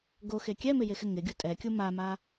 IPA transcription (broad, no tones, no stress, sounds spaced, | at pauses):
ɡ o x e kʲ ɛ m ɪ j e x ɪ ŋ ɪ ɡʲ u tʼ ɛ kʲ u m a m a